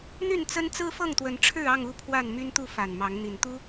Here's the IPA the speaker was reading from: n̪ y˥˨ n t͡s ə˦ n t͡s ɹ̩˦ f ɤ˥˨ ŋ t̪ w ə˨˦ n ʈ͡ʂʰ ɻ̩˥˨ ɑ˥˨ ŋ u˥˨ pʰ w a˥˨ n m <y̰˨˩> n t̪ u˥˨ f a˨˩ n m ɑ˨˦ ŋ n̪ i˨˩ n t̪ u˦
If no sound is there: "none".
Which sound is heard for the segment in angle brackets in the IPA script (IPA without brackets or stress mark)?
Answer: y˦